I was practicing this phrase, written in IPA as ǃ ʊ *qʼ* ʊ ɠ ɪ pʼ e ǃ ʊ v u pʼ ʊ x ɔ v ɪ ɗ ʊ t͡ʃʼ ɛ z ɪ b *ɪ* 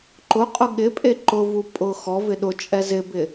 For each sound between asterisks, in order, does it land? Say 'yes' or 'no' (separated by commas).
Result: yes, yes